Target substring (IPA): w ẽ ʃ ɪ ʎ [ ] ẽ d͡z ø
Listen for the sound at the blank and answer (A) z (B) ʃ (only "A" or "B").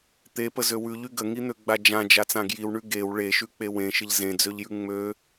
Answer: A